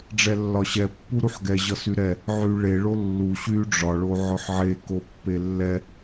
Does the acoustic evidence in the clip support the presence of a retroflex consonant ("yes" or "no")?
yes